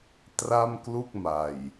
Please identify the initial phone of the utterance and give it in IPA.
t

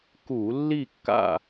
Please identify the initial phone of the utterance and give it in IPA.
k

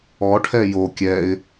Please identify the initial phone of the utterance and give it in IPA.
ɔ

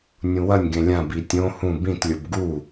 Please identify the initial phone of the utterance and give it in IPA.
nʲ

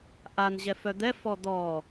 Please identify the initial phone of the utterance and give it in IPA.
ʔ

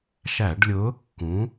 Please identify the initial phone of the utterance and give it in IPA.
ʃ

